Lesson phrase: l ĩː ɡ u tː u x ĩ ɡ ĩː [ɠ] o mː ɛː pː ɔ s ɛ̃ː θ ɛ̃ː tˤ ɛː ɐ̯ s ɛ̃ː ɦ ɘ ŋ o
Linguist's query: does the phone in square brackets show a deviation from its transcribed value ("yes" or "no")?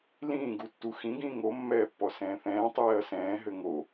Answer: yes